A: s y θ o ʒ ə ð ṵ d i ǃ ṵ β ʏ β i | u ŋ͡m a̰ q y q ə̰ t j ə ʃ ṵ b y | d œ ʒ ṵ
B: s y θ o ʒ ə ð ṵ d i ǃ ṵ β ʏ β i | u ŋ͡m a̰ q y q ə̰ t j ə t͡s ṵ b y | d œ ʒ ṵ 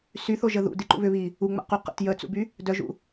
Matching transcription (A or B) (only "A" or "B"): B